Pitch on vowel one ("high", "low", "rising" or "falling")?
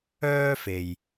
high